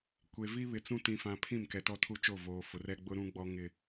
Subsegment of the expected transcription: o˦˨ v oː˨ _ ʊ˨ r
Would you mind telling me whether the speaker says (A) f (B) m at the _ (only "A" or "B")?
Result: A